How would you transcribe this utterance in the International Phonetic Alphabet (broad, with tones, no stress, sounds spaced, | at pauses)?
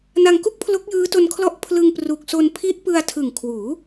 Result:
n a˧ ŋ k u˥˩ k̚ pʰ l o˦˥ k̚ j ɯː˦˥ t o˧ n kʰ l ɔ˦˥ ʔ pʰ l ɯ˧ ŋ p r u˨˩ k̚ s o˧ n pʰ i˦˥ ʔ p ɯ˧ a̯ tʰ ɯ˨˩ ŋ kʰ w uː˩˦